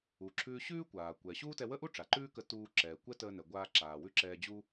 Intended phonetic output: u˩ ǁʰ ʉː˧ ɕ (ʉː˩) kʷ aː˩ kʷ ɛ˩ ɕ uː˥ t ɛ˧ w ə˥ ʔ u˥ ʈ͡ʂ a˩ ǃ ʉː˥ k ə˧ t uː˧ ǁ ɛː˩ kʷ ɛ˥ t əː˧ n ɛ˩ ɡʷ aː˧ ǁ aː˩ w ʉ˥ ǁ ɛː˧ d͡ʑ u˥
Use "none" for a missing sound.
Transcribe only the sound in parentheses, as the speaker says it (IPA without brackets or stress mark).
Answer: ʉː˥